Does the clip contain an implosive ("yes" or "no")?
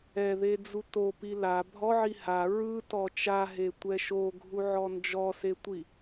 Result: no